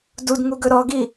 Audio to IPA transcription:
d u d ŋ u ɡ ɵ ɾ ɔ ɡ i

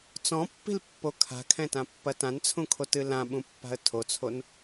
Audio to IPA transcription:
t͡s ɔ̃ pː i̤ l pː o kʰ a̤ kʰ ɛ̃ t ã pː ɐ t ã n t͡sʰ ũ kʰ o t ɨ l ã ɓ ũ pː a̤ ə̯ tʰ o t͡sʰ o n

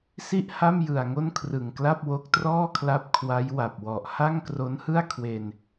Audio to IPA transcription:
s i˥˩ ʔ h a˥˩ m j ɯ˨˩ a̯ ŋ o˥˩ n kʰ r ɯ˨˩ ŋ k l a˥˩ p̚ w o˦˥ k̚ t r ɔː˥˩ kʰ l a˦˥ p̚ kʰ w a˦˥ j w a˨˩ p̚ w ɔ˨˩ ʔ h a˥˩ ŋ k r o˦˥ n h ɯ˥˩ a̯ kʰ w e˧ n

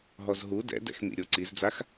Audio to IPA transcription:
ɦ ɔ z ɦ u d ɛ̰ d ɛ̰ x m ḭ ɾʲ o ǀ i z d͡z a x

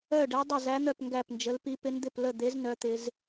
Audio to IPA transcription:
œ˥˧ ɖ ɛ˦˥ dˤ ə˥˧ z æ˦˥ n̪ œ˥˧ p ŋ ɡ æ˥˧ p n d͡ʒ ə˦˥ l p i˦˥ p ɪ˦˥ n d̪ ɪ˥˧ p l ə˥˧ d̪ e˦˥ z n œ˦˥ t̪ ɪ˦˥ z

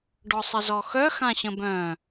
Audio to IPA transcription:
ɖ ɔ sˤ ə z ɔ x œ x ã ɕ ə̃ b œ̃

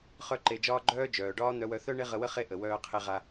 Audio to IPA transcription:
χ œ˦ ǃ e˧ d͡ʒ ɒː˦ ɡ͡ǃ œː˦ d͡ʒ œː˨ ɖ ɒː˦ n̪ œ˧ w œ˧ θ œ˦ ɳ e˦ ʁ ə˧ w ə˦ χ e˦˨ ʔ ə˨ w œː˧ qʰ e˧ ʁ a˧

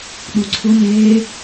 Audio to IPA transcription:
ɗ u ǀʰ ʊ n eː

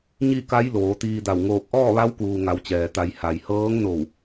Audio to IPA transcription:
ɲ i˥˨ k a˧˥ j l oː˩˧ t̪ iː˧ d a˧˩ w ŋ oː˧˩ k̚ ʔ ɔː˥˨ ʋ a˧˥ w k uː˩ ŋ a˩˧ w t͡ɕ ɛː˩ t̪ a˩˧ j h a˩ j h ɤː˧˥ ŋ n o˧˩ w

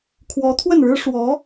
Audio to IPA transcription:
kʰ w ɔ˧˥ t̪ʰ w ə˥˩ n ɻ ɻ̩˥ ʂ w ɔ˧˥

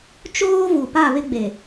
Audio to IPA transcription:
t͡ʃ oː˦ v u˨ p a˦˨ β ɪ˦ ɡ͡b e˨

